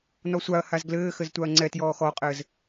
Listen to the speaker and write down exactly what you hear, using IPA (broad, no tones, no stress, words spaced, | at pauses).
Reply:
nɔsʷaɐ̯haz ɡlɘːxɘz tʷaɐ̯ŋ͡ǀɛtjɔː xɔqʼɘːz